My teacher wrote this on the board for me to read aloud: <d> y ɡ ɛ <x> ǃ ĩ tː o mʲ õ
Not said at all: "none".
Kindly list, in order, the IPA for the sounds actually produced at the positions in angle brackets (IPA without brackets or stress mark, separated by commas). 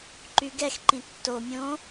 ǃ, x